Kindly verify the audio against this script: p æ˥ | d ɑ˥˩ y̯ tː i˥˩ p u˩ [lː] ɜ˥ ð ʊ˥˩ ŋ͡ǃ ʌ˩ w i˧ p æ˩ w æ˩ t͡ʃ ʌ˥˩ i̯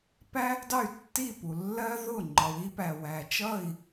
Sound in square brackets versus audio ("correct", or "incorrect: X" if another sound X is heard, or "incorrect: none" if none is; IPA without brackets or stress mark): correct